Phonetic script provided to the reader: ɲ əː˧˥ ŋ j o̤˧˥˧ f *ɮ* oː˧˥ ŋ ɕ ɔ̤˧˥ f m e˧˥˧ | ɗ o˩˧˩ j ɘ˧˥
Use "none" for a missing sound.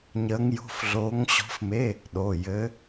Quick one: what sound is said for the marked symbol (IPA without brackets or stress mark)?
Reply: ɮ